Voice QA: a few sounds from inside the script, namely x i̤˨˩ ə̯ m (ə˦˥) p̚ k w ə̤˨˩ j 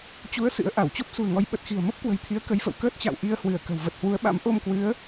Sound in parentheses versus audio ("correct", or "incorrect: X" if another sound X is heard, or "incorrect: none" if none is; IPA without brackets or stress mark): correct